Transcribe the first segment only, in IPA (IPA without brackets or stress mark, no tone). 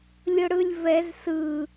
lʲ